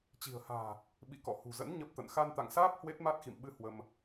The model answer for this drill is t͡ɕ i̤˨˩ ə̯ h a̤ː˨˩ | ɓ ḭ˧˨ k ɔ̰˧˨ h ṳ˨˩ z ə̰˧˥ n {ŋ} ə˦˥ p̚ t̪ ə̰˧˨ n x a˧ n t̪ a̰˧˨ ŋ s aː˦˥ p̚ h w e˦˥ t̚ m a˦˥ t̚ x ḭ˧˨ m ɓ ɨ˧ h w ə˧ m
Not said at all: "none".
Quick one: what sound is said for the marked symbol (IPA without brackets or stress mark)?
ɲ